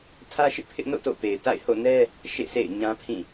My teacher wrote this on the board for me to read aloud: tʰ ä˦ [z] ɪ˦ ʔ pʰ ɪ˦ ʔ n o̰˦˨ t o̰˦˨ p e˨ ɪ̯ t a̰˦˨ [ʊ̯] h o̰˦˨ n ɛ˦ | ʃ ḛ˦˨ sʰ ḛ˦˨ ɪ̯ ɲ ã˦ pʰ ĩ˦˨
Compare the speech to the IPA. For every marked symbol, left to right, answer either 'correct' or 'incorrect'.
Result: incorrect: ʃ, incorrect: ɪ̯

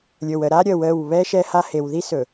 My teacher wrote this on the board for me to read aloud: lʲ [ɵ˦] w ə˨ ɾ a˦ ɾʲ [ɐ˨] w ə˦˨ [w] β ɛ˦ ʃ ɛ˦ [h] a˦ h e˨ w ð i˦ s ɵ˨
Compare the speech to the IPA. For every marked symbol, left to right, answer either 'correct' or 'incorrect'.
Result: incorrect: ɵ˨, incorrect: ə˨, correct, correct

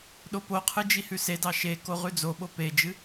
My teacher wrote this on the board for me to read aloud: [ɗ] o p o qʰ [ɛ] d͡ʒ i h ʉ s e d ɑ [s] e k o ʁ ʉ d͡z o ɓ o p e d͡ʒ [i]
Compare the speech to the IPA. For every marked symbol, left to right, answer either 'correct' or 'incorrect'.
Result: correct, incorrect: ɨ, incorrect: ʃ, incorrect: ɨ

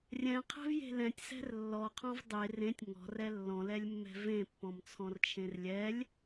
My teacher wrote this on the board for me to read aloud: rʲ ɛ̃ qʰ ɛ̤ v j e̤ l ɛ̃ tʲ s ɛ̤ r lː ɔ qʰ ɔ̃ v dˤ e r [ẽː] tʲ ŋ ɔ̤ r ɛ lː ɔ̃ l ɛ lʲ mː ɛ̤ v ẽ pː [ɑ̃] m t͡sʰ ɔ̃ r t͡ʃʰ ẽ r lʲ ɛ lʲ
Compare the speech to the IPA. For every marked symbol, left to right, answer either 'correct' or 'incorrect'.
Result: incorrect: ẽ, incorrect: ɔ̃

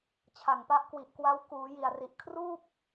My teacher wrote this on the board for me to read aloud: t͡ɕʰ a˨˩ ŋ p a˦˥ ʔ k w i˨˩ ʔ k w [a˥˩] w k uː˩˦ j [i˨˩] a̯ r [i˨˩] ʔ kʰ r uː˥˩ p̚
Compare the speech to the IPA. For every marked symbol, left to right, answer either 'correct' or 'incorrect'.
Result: incorrect: a˦˥, correct, correct

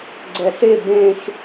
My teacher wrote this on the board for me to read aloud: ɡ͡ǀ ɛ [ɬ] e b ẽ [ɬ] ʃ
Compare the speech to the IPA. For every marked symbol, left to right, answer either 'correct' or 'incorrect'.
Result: correct, incorrect: none

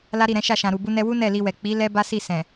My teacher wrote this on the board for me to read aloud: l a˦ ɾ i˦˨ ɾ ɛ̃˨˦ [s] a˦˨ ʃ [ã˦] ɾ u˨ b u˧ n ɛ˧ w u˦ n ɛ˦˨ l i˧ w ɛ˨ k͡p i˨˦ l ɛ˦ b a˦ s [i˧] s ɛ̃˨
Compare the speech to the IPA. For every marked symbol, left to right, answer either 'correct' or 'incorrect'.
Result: incorrect: ʃ, incorrect: ã˨, incorrect: i˦˨

